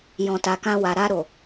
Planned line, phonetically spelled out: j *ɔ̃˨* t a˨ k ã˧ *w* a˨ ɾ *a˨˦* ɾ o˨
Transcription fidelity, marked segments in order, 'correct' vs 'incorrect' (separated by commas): correct, correct, incorrect